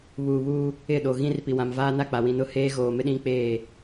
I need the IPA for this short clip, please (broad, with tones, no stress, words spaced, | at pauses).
βuː˨βuː˦ | ɪ˦˨ɗo˨ ɣĩ˦r pi˨wã˨mvaː˦na˦˨ k͡pa˨wĩ˨nʊ˦heː˦ ɣoː˨mɪ˦ ɗĩ˦k͡peː˦˨